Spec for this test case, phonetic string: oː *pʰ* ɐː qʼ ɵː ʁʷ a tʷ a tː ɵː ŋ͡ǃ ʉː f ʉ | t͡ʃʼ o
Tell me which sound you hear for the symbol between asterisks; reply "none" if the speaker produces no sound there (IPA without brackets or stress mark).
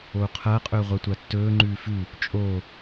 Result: qʰ